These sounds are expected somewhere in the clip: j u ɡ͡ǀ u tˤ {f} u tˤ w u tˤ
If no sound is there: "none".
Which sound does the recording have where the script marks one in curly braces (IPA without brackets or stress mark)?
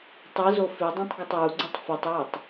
f